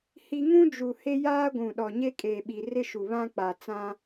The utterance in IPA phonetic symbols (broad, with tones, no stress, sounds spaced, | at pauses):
h i˦ ŋ ũ˦ d͡ʒ u˨ h e˦ j aː˦ ɡʷ ũ˨ ɗ ɔ˨ ɲ e˦ kʼ eː˨ ɓ i˨ r ɪ˦ ʃ u˨ β ã˦ k͡p a˨ t͡s ã˦